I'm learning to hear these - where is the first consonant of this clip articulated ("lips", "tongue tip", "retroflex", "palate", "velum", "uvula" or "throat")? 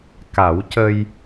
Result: velum